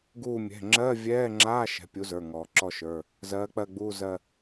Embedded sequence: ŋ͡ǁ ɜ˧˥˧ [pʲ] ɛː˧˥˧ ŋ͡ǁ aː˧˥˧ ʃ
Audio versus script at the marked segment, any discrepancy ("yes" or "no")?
yes